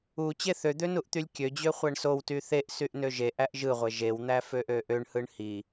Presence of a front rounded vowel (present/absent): present